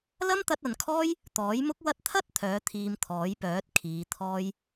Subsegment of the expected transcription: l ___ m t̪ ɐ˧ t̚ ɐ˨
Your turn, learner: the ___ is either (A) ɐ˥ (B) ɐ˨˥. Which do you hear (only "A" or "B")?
A